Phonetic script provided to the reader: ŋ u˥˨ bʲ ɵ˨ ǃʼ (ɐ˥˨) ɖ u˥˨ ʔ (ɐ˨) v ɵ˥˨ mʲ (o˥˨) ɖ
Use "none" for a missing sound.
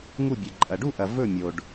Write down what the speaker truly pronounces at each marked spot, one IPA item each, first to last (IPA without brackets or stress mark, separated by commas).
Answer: ɐ˨, ɐ˨, o˨